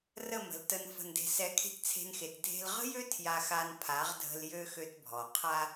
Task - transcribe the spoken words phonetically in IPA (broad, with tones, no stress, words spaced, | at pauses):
rə˦˨mə̤˨ltə˧n fə̤˨nde̤˨sɛ˨˦kʰe̤˧t t͡sʰe̤˧nxe˨t dʱe̤˧lʁə̤˦jø˦ tʰja˧xa˧n pʰa˨˦ʁdʱə̤˧l jø˧ xø˧tbʱɔ˨ qʰa˧